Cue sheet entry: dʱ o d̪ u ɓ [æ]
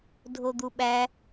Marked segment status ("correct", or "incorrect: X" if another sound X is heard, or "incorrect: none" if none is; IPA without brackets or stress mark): correct